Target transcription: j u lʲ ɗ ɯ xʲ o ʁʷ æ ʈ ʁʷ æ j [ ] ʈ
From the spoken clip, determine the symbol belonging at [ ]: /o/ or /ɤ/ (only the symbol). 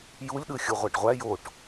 o